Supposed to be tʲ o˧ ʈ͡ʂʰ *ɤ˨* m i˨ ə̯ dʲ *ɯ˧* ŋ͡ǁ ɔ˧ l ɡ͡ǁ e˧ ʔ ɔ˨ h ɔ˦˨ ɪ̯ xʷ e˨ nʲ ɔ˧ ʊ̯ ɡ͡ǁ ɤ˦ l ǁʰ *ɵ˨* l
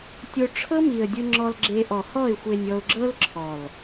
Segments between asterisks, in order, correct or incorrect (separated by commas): incorrect, correct, incorrect